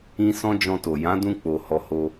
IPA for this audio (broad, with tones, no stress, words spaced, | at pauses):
ĩ˧ sɔ̃˦d͡ʒɔ̃˧to˨ jã˨˦dũ˧k͡po˨ hɔ˧ho˧